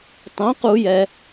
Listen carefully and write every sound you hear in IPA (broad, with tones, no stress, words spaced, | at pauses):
tˤõ˩˥qu˧˩˧jɛ˩